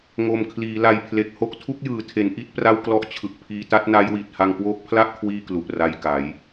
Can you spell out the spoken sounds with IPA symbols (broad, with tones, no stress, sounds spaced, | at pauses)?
ŋ o˨˩ m kʰ l iː˩˦ l a˨˩ j pʰ l e˨˩ k̚ h o˦˥ k̚ tʰ u˦˥ k̚ j ɯː˩˦ tʰ e˩˦ n ʔ i˥˩ t̚ p r a˥˩ w k l ɔ˦˥ ʔ t͡ɕʰ ɯ˨˩ k̚ pʰ iː˧ t a˥˩ t̚ n a˦˥ j w i˨˩ t̚ h a˧ ŋ k w oː˦˥ k̚ pʰ l a˥˩ ʔ kʰ w iː˥˩ k l u˨˩ ʔ r a˧ j k a˩˦ j